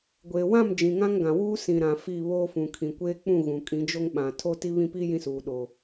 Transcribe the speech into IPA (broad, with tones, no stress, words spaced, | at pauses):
ɡʷeː˨wã˦˨m d͡ʒĩ˨ŋã˦ŋɡã˨wuː˦ sĩ˨ɾã˨ fi˦˨βoː˦fũ˨ kʰĩ˨kʷeː˦k͡pũ˦˨ ɣũ˨kʼĩ˨˦d͡ʒo˦ŋɓã˨ tʰo˦ti˦βĩ˦pi˦ jĩ˦suː˨ ɗo˨